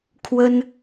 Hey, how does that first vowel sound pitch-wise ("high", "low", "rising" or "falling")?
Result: high